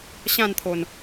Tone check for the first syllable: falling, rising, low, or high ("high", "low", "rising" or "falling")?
falling